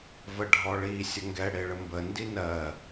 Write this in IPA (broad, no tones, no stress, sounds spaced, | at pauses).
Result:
v ə ɖʱ ɔ ɭ i sʲ ə ŋ ɡ ɛ ɽ e ɭ ə m b ə n d i n ɜ